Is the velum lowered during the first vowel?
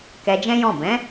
no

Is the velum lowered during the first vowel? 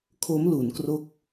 no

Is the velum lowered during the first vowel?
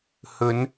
no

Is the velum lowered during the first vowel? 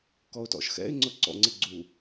no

